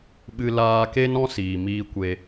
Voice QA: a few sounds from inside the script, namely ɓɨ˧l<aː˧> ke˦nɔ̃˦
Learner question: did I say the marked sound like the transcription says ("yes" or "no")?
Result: yes